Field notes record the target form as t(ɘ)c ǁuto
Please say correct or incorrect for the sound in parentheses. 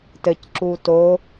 correct